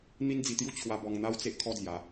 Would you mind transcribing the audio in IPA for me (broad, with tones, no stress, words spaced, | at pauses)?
n̪i˦nd͡zi˧t̪ju˦ t͡ɕʰwa˧ bɔ˧ŋn̪a˦wt͡se˦ʔ kʰɔ˦d͡zja˨˦